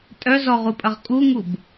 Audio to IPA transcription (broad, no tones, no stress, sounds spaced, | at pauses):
tʼ œ z ɔ ʁ u pʼ ɐ ʁ kʼ u ŋ u b